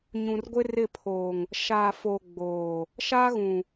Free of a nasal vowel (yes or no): no